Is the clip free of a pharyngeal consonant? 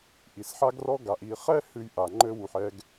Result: no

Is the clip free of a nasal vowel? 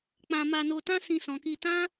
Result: no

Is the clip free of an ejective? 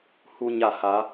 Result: yes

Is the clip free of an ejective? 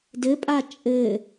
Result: no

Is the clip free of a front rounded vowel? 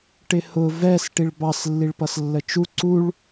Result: yes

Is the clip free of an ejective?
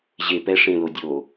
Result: yes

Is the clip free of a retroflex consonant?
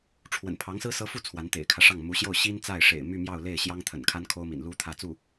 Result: no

